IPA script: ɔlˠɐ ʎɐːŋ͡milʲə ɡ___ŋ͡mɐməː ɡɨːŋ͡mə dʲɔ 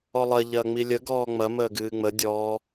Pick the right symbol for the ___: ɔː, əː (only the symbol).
ɔː